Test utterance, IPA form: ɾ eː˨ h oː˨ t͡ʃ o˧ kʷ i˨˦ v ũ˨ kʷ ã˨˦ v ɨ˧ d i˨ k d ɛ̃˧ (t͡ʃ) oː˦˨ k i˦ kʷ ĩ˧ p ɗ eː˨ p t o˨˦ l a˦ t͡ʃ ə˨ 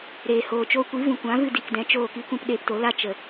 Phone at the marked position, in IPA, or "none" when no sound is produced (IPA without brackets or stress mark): t͡ʃ